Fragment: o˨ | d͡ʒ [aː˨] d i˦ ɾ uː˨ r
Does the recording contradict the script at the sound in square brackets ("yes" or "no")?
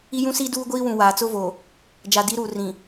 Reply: yes